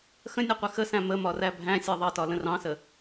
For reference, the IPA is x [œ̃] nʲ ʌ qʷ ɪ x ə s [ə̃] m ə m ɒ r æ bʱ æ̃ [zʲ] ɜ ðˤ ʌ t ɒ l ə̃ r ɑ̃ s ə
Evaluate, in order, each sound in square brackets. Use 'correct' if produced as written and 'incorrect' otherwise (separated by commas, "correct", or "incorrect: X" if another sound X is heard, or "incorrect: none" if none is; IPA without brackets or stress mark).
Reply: incorrect: ə̃, incorrect: æ̃, incorrect: sʲ